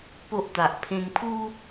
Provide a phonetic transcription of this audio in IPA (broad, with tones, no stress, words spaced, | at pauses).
po˦ʔt̪a˨ʔ pʰẽ˧ŋpʰu˦